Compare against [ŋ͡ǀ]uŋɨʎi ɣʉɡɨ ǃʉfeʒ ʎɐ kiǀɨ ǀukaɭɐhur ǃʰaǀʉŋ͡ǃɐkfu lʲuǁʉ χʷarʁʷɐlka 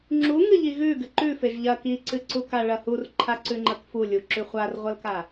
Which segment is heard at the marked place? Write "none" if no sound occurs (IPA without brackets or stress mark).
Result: ŋ͡ǁ